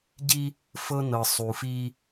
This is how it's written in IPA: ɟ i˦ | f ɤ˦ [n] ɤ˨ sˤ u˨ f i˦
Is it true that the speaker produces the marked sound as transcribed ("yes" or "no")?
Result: yes